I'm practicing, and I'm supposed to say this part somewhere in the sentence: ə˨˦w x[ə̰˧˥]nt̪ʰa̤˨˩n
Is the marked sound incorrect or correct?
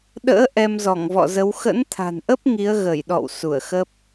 correct